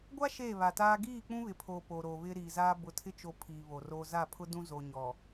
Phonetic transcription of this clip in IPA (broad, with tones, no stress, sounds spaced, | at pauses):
ɡʷ a˦ ʃ eː˦˨ β a˨ t aː˦ ɡ iː˦˨ k͡p ũ˦ β ɪ˨ pʰ oː˨ p o˨ ɾ o˨ β ɪ˦ ɾ iː˨ z aː˦ b ʊ˨ tʰ ɪ˦ t͡ʃ o˨ pʰ iː˨ β o˨ r oː˦ z a˦˨ pʰ ʊ˦ d ũ˦ z o˨ ɲ ɔ˨